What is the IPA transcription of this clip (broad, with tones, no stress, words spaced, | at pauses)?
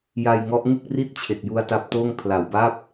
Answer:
ja˧jŋɔ˦˥ʔŋɯ˥˩k̚ri˥˩t̚ t͡ɕʰe˨˩k̚ju˧a̯ta˦˥p̚toː˥˩ŋ pʰla˨˩wba˥˩p̚